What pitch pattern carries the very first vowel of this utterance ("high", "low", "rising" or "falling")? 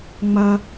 high